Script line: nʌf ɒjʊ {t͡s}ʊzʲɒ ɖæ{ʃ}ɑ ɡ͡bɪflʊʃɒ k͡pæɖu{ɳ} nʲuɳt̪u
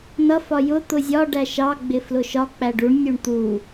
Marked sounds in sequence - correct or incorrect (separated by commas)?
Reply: incorrect, correct, correct